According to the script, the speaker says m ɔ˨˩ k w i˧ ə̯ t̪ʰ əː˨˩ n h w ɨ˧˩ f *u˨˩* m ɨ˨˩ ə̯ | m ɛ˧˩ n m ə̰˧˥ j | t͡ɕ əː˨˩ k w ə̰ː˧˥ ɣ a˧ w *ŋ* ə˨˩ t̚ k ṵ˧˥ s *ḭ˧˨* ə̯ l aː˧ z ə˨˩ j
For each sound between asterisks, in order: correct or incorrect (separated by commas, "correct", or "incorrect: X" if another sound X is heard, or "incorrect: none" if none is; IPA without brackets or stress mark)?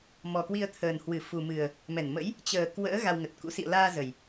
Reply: correct, correct, correct